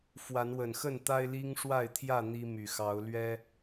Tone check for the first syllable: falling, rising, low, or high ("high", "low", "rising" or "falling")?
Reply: rising